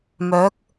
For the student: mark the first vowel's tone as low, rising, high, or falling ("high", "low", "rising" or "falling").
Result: rising